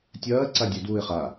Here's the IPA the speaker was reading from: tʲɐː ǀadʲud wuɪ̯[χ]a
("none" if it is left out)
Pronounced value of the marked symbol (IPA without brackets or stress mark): χ